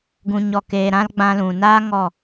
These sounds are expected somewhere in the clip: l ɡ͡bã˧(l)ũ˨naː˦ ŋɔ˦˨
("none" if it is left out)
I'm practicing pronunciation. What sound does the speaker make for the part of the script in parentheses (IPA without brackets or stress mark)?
l